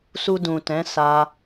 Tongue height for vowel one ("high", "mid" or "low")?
high